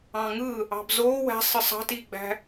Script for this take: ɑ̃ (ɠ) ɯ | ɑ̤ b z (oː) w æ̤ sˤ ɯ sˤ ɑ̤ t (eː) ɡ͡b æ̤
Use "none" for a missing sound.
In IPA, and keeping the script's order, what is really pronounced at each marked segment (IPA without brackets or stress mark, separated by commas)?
ŋ, oː, iː